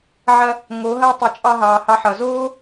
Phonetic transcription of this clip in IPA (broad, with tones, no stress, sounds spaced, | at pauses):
ʕ ɐ˧ | ŋ oː˨˦ ɦ ɐː˦ tˤ ɯ˨ t͡ʃʼ ɑ˧ ɦ ɑː˨ h ɑ˧ ħ ʌ˨ z oː˦